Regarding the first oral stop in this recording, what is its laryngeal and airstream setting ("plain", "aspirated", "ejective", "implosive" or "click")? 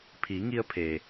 aspirated